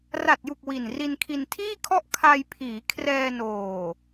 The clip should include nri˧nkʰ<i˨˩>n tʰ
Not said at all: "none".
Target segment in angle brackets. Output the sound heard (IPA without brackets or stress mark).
i˧